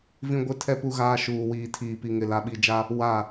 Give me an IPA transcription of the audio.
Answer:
v ĩ˦ ɡʷ ɪ˦ tʰ ɛ˦ p u˦ ɣ aː˦ ʃ uː˨ w iː˨ tʰ iː˨ p i˨ ŋ ɪ˨ l a˨ ɓ i˨ d͡ʒ a˦ | w a˦˨

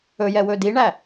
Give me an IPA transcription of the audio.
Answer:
ɵ j ɛ w ɵ d i ɳ æ

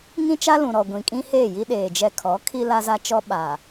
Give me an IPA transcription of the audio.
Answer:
ŋ ĩ˦ t͡ʃ a˦ l ũ˨ ɾ ɔ˨ ɡʷ ĩ˨ kʼ ĩ˦ h eː˦˨ j i˦ ɗ eː˨ d͡ʒ ɛ˦ kʰ ɔ˨˦ kʰ i˦ l a˦ z a˦ t͡ʃ ɔ˦ ɓ aː˨

